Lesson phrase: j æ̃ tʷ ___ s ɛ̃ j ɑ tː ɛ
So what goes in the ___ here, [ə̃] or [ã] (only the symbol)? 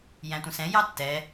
ə̃